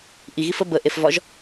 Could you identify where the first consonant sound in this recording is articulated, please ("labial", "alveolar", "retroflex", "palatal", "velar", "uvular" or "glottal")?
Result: glottal